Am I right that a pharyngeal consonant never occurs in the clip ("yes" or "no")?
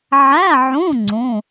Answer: no